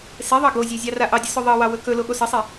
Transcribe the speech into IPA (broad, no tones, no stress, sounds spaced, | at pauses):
s e ðˤ ɑ ɡ o zʲ e zʲ ɑ r a ʔ ɑ dʲ ə s ɵ ðˤ ɑ w ɑ w ɵ k ɵ l o ɠ o s ɐ sˤ e